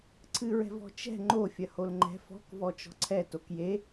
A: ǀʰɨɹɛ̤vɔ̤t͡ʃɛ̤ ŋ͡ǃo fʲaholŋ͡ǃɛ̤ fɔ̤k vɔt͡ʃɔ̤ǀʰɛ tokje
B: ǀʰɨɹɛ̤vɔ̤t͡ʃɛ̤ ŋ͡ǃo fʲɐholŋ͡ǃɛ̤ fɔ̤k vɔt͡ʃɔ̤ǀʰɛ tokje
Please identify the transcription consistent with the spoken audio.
B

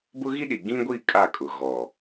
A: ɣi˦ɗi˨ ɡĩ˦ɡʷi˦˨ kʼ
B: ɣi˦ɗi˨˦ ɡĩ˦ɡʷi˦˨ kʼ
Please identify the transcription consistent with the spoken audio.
A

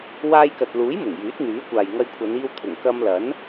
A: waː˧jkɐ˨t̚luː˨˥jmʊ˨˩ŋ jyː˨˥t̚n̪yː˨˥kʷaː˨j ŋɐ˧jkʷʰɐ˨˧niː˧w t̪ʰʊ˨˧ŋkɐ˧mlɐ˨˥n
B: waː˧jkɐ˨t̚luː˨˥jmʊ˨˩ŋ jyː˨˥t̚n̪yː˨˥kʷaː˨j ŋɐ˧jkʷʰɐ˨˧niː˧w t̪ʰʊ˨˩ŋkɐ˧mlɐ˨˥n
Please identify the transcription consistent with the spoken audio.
B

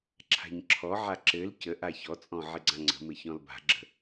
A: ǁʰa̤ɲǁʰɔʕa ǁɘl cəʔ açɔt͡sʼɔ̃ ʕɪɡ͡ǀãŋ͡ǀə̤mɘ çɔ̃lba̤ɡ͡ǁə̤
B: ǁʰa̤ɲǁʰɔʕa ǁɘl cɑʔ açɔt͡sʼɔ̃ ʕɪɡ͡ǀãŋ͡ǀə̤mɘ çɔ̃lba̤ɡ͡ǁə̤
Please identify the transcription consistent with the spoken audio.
A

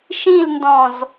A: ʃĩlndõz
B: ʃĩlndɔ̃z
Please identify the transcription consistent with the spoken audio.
B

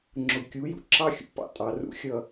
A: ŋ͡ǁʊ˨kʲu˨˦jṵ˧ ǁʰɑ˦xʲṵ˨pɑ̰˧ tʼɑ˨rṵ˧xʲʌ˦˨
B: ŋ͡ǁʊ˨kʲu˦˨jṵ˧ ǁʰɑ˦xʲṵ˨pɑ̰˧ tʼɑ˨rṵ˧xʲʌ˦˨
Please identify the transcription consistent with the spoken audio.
A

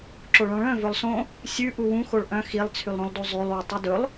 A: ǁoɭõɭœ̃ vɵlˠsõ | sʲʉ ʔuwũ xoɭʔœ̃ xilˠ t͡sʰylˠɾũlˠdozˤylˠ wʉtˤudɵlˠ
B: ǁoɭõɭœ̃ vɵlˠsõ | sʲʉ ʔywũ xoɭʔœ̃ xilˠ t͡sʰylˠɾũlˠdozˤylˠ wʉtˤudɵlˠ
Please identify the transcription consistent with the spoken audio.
A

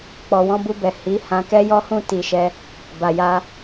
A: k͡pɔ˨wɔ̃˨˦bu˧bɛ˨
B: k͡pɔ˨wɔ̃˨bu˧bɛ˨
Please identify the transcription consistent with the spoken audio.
A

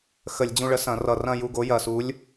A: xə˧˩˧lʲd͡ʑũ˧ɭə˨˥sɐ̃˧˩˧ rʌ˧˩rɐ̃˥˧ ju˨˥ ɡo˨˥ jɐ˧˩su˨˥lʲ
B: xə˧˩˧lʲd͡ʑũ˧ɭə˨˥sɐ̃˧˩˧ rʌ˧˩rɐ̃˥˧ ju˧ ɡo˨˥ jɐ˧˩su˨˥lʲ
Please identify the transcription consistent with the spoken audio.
B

